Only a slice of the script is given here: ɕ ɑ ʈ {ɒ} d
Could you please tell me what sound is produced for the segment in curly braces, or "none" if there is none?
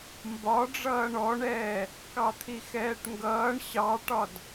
ɒ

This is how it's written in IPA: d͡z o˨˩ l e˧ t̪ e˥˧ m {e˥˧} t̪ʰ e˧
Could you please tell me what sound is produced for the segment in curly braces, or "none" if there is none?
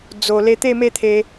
e˥˧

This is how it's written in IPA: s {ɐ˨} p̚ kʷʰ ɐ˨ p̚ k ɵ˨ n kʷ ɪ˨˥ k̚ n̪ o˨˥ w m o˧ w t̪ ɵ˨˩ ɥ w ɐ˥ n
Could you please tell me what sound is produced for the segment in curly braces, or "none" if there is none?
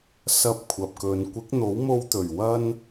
ɐ˧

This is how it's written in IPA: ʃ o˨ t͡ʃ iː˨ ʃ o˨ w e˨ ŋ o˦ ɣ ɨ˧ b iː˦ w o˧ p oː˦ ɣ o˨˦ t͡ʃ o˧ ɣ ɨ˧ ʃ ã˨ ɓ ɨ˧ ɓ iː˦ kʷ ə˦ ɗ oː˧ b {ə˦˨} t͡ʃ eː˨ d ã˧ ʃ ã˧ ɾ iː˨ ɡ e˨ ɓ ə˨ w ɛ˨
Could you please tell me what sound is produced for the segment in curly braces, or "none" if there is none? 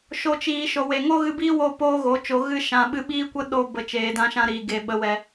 ə˨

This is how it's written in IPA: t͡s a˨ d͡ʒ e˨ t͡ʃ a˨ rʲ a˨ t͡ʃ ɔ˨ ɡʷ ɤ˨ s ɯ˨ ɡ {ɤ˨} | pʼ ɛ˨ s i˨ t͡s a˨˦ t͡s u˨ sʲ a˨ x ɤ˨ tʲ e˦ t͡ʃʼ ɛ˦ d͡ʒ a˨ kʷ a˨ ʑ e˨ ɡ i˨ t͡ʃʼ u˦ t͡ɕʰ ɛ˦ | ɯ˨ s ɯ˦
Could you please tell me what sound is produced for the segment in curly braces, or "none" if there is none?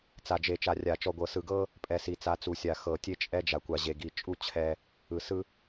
ɤ˦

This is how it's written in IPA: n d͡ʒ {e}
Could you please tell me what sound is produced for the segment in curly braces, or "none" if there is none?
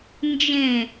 ẽ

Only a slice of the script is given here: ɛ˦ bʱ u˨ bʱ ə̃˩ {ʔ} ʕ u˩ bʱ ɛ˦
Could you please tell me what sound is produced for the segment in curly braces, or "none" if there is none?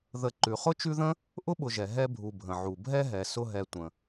none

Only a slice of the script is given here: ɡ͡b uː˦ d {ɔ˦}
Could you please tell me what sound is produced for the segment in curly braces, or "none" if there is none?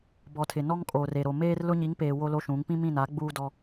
ɔ˦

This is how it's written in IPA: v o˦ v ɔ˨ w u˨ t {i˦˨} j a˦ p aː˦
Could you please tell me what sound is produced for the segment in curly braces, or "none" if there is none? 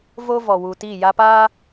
i˦˨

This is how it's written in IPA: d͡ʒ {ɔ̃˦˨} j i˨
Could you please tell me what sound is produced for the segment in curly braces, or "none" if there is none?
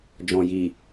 ɔ̃˨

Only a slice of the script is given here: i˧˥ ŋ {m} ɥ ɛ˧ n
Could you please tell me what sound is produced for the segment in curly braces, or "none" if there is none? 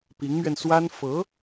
m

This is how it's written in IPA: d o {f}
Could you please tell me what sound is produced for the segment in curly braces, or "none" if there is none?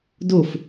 f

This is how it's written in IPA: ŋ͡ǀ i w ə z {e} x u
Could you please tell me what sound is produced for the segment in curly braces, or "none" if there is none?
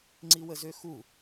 ø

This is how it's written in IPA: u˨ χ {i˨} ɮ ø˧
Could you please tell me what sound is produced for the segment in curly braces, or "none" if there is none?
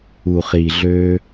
i˨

